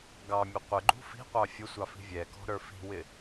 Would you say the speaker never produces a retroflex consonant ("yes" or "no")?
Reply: yes